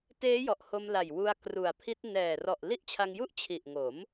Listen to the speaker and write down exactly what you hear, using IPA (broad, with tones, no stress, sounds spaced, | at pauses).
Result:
t eː˦˥ j ɔ˨˩ ʔ h o˧ m l a˨˩ j w u˧ a̯ k r u˨˩ a̯ pʰ i˦˥ t̚ n ɛː˨˩ r ɔ˨˩ ʔ l i˦˥ ʔ t͡ɕʰ a˧ ŋ j u˥˩ ʔ t͡ɕʰ i˨˩ ʔ ŋ o˩˦ m